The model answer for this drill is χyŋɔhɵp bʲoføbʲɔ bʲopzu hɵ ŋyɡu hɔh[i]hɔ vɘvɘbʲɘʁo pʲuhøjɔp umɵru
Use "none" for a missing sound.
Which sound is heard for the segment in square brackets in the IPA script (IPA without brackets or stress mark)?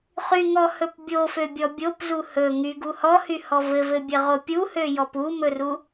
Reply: y